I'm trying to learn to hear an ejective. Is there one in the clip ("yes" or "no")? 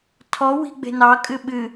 yes